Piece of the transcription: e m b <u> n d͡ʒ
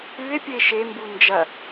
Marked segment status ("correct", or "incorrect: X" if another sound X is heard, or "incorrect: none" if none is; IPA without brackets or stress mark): correct